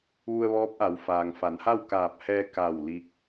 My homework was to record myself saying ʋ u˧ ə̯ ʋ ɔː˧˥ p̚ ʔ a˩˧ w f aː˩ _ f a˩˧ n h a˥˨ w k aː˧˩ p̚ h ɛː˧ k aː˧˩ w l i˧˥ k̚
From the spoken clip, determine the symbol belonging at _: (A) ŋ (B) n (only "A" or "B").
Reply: A